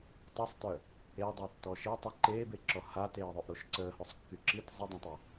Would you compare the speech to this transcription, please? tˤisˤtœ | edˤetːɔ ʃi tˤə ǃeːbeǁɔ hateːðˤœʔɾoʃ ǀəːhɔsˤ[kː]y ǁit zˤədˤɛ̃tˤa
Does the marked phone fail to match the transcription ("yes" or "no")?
no